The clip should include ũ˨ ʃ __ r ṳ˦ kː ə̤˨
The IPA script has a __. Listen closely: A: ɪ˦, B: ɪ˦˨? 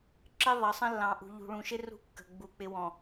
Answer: A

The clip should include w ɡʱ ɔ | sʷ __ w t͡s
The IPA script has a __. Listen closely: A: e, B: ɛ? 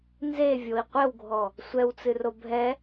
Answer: B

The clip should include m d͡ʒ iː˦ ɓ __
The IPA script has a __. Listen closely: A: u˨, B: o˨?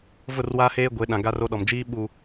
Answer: A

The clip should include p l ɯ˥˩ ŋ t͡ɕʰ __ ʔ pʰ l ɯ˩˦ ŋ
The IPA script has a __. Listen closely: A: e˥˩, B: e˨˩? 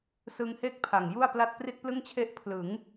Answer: A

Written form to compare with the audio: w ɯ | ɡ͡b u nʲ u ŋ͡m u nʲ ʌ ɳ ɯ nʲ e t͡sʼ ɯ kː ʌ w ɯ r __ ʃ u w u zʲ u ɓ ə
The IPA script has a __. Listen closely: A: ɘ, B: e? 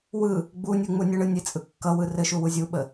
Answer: A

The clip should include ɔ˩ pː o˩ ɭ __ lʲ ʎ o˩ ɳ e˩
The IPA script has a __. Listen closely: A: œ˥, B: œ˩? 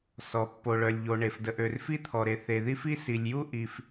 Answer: B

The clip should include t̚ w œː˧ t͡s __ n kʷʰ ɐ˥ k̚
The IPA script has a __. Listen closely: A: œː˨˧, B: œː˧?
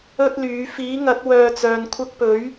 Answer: A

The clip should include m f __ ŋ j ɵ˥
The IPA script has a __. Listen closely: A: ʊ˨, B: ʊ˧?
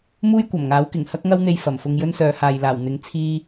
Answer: B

